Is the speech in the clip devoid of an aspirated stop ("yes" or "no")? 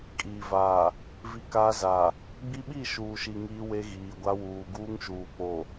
yes